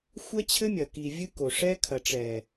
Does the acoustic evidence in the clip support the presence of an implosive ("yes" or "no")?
no